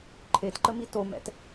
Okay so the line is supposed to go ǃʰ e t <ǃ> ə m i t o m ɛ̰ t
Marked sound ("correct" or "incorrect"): correct